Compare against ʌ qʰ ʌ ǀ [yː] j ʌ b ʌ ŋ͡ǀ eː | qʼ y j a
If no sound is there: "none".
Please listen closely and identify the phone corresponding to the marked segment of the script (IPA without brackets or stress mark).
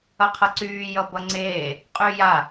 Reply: yː